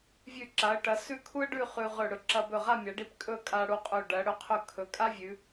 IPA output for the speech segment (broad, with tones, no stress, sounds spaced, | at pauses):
vʲ ʉ˧˩ ǁ a˩˧ ə̯ ʈ ɐ˩˧ s ʉ˥˧ kʰ u˥ ə̯ ɖ ʉ˥˧ χ ʉ˧ ʁ ɵ˧˩ ɽ ɵ˧ ǁ ɐ˧ b ɵ˧˩ ʁ a˥˧ mʲ a˩˧ ɖ i˧ p kʼ ɵ˥˧ kʼ a˧ ɽ u˧ qʼ ɵ˧˩ ɖ ɐ˩˧ ɽ ɵ˥ qʰ ɵ˥˧ kʰ ɵ˩˧ kʼ a˥ vʲ ʉ˩˧